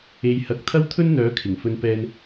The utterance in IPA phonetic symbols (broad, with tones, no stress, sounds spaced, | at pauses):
e˨ j h ɐ˨ k̚ t̪ʰ ɐ˥ w t̪ʰ ɵ˥ n n̪ œː˨˥ kʰ ɪ˨˩ ŋ f ɵ˧ n p ɛː˧ n